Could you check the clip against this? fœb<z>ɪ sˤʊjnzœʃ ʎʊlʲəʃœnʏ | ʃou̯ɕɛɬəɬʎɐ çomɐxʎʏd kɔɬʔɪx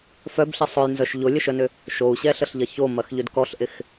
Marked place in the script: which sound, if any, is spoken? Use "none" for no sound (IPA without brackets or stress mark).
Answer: ɬ